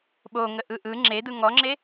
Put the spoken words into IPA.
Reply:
ɓoŋəʔɯ ʔɯ ŋ͡ǁed̪ɯ ŋɔŋ͡ǁe

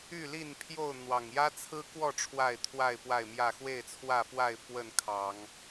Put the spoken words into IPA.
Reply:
y˥˨li˥˨npʰjo˥˨ʊ̯ n̪wɑ˨˩ŋjä˦t͡sʰɹ̩˦kwɔ˥˨ ʈ͡ʂʰwa˥˨ɪ̯t̪ʰwa˥˨ɪ̯pwa˥˨ɪ̯mjä˥˨ xwe˥˨ɪ̯t͡sʰwä˥˨fwa˥˨ɪ̯ fwə˥˨nkʰɑ˨˦ŋ

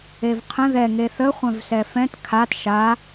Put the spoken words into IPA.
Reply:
evqʰə̃ ðɛ ŋeθə χʷɛ̃vsɛfɛ̃t kʰat ʃa

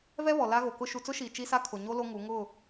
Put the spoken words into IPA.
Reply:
vɛ˦βɔ˨ la˦ɣo˨kʊ˦ ʃu˨t͡sʊ˦ʃiː˨ t͡ʃi˦sa˦ kʰʊ˨ɲo˦ lo˦ŋu˨˦ ŋʊ˦˨

